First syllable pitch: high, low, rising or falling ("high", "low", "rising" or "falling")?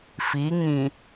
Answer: rising